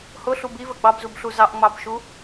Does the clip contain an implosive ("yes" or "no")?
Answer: no